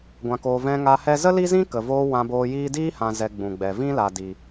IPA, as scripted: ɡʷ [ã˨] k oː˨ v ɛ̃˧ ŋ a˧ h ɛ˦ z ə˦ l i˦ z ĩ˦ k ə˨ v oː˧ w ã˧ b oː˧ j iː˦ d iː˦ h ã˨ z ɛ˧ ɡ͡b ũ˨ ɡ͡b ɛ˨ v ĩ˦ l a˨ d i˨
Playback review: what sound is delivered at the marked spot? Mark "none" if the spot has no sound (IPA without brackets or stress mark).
ã˨